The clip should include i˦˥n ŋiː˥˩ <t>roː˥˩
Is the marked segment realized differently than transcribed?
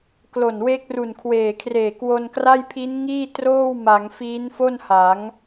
no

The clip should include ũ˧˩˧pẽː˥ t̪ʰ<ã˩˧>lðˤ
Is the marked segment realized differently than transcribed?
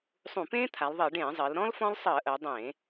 yes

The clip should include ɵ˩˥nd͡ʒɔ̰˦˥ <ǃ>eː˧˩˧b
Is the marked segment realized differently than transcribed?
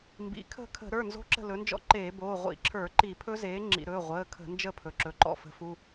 no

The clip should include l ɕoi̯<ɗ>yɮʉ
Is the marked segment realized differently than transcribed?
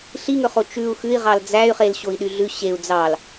no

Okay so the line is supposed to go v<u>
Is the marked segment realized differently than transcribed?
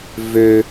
yes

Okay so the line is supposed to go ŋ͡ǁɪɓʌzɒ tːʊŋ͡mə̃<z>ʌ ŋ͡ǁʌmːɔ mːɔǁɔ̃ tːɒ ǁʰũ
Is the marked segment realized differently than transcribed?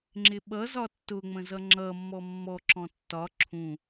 no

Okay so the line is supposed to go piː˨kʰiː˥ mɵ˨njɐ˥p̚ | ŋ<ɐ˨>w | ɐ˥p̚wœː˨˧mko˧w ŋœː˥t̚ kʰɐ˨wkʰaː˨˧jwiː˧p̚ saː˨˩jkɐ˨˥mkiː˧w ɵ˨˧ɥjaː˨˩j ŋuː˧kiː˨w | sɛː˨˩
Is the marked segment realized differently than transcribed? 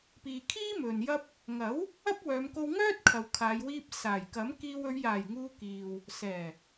yes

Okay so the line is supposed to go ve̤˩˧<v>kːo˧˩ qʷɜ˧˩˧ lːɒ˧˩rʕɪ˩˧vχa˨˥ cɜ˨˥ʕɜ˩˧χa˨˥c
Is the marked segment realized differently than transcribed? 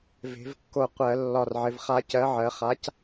no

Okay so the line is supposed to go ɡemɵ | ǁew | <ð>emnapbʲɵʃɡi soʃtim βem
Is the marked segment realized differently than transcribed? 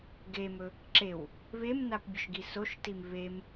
yes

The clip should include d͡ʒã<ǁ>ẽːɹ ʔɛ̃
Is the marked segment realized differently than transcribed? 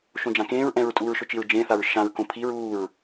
yes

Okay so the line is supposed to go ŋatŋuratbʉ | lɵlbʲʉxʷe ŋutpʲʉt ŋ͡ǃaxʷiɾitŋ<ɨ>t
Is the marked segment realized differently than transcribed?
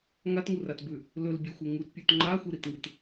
no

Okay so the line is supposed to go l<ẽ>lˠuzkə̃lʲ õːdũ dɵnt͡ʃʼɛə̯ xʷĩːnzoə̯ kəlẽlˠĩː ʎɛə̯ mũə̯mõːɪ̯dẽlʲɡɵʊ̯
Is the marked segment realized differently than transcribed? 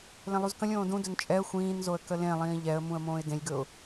no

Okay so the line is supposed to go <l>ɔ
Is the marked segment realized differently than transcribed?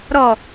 yes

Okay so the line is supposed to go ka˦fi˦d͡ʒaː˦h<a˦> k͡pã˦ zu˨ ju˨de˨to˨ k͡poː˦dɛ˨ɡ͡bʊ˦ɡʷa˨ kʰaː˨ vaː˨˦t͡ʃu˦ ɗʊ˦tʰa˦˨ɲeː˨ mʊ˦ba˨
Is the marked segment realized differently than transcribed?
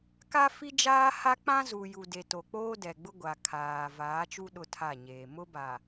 no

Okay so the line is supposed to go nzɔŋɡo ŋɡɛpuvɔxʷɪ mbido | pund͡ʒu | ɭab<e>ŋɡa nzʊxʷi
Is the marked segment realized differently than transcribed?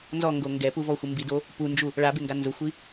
no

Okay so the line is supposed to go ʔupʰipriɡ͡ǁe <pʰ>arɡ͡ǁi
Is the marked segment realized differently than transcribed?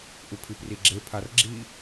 no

